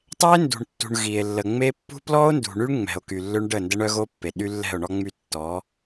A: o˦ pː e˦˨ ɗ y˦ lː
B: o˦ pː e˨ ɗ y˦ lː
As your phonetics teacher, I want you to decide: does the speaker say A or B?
B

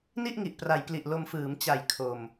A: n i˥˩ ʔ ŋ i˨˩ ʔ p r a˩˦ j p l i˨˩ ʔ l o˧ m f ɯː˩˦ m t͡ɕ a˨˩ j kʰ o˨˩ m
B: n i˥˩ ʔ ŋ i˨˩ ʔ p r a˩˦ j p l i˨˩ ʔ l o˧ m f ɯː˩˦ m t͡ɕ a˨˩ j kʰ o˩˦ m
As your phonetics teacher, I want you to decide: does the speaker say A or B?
A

